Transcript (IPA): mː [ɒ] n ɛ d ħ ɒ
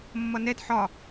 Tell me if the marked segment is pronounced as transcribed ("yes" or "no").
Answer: no